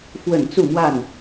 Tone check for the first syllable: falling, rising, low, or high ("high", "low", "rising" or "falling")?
falling